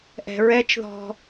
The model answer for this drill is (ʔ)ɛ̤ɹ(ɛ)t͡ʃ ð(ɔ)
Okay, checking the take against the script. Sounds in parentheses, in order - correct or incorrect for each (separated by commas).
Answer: correct, correct, incorrect